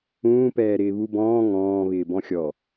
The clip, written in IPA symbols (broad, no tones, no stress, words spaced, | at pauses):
ũːpɛːɾɪː βu bɔ̃ː ŋɔ̃ː βɪːbɔ̃xʲɔ